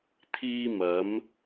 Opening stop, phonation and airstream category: aspirated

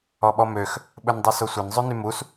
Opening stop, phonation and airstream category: implosive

